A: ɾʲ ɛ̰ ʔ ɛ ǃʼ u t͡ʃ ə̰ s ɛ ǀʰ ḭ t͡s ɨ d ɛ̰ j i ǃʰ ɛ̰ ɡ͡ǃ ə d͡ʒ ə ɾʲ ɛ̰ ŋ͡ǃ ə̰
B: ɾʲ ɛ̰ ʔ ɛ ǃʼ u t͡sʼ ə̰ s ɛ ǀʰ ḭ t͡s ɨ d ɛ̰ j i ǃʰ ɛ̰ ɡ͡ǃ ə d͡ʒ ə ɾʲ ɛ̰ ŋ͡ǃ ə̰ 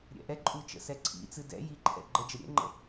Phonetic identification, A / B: A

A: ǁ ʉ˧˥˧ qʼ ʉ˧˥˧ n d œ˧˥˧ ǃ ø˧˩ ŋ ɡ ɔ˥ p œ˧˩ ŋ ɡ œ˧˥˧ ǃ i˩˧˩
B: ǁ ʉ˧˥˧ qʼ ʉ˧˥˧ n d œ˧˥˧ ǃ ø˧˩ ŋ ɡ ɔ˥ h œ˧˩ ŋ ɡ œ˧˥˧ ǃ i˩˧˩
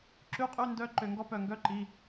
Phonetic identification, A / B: A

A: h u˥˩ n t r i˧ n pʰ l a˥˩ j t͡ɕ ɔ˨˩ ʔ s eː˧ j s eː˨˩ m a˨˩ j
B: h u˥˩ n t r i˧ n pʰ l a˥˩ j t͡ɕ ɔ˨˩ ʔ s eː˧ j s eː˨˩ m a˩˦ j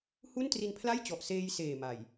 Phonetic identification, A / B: A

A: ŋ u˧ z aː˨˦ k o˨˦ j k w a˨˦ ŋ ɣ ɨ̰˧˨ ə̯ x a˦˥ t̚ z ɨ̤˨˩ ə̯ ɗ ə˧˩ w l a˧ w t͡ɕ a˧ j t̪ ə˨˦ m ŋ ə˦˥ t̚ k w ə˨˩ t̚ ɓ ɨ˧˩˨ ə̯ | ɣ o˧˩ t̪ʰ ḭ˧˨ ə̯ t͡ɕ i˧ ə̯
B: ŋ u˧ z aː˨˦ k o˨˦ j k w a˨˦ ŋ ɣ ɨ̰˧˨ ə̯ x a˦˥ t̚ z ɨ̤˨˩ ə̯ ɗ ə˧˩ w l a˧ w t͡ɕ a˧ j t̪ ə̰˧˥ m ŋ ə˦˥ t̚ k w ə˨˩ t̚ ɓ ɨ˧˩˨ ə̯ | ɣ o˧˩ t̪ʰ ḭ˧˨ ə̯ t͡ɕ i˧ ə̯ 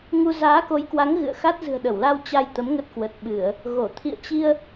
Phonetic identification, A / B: A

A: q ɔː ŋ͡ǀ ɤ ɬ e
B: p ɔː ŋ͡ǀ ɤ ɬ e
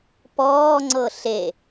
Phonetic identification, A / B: B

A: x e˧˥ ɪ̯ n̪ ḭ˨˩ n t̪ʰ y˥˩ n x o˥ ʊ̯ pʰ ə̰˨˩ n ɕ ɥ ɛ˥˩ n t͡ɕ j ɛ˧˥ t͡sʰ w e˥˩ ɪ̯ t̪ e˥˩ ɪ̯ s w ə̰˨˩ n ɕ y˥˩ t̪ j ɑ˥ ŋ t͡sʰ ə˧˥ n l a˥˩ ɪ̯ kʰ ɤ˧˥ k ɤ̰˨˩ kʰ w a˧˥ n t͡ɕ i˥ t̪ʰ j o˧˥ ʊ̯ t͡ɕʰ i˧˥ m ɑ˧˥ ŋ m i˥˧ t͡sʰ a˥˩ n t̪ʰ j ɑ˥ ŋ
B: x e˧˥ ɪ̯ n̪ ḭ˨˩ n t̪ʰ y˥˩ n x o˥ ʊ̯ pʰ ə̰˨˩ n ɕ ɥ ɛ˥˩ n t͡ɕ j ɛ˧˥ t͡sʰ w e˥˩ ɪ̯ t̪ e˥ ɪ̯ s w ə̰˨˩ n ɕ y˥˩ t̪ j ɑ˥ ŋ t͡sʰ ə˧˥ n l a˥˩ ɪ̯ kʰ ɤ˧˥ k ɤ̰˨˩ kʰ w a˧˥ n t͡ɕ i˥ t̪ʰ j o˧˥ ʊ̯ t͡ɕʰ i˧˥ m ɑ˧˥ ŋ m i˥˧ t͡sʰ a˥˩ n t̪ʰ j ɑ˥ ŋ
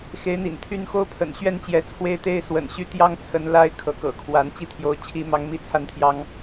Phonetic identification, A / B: B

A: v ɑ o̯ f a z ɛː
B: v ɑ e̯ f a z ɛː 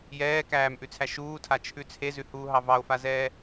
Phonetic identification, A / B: A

